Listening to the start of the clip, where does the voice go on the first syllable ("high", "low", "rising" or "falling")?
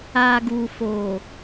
low